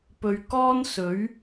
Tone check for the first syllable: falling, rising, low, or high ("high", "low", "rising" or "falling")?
low